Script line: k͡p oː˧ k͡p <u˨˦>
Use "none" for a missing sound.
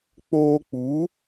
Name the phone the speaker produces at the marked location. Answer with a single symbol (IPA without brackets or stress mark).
u˨˦